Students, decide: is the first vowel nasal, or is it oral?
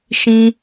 nasal